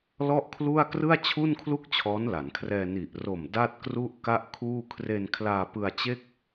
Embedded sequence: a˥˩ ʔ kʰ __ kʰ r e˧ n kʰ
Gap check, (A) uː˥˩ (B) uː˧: A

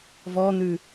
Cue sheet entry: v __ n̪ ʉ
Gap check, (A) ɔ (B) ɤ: A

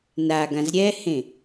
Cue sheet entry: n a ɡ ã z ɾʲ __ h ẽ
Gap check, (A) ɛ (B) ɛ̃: A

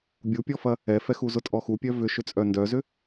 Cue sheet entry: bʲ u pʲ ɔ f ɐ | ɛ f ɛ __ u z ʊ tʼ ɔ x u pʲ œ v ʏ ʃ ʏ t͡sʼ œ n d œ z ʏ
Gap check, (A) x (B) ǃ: A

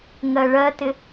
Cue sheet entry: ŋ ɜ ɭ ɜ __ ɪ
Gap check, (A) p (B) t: B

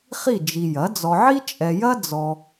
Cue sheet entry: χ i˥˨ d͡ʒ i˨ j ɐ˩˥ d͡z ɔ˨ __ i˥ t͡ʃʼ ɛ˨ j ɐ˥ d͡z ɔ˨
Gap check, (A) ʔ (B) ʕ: B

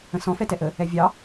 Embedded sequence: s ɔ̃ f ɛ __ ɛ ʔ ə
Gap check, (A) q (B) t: B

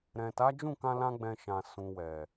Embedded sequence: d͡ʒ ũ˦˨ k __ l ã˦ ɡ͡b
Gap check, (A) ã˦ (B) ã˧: B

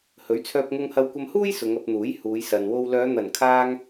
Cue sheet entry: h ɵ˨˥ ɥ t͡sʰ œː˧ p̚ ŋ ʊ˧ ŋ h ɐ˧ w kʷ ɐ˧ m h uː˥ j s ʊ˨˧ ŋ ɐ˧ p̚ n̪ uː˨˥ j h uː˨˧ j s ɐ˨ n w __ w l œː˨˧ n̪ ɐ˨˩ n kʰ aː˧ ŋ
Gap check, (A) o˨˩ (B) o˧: B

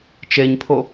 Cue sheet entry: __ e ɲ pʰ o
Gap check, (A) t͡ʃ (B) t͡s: A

